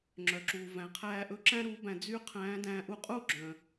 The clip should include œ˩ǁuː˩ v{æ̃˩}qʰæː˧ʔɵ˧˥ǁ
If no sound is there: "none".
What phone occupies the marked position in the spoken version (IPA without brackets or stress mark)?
æ̃˩